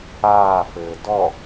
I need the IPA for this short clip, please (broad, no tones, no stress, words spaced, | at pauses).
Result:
aːfɘː dɔ